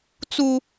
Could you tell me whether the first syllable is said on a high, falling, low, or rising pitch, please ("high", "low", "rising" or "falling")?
low